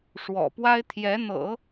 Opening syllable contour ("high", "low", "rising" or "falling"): low